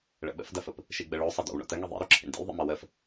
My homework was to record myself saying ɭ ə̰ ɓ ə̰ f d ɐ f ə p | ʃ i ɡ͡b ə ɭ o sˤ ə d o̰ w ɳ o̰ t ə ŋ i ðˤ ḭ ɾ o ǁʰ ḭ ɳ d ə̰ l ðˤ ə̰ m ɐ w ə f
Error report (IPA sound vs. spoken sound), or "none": none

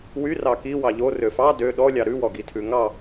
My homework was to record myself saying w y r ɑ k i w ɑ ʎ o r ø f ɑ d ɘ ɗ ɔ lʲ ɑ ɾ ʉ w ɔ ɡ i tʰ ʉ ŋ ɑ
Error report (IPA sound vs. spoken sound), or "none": ɘ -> ø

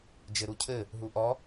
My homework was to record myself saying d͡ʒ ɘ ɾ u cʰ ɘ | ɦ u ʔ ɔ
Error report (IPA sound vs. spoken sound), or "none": none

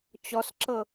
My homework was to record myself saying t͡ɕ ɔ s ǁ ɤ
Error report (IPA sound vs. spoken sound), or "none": none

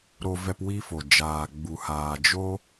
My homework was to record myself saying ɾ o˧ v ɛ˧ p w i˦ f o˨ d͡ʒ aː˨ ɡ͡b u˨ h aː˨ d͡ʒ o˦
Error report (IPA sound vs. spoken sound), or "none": none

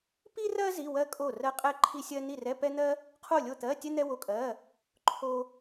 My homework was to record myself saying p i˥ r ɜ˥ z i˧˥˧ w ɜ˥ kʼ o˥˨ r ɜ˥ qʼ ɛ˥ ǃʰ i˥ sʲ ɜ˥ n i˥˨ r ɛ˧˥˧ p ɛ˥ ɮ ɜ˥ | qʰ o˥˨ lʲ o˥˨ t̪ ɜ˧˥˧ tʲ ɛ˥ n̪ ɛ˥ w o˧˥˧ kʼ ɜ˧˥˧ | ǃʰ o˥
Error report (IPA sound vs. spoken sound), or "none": ɮ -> n̪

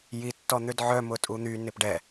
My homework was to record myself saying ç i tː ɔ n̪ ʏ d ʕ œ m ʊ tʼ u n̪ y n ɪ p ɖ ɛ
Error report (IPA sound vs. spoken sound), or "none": ç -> j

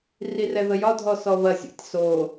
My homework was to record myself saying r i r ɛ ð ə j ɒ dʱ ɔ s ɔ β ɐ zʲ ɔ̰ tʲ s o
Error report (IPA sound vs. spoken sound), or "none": none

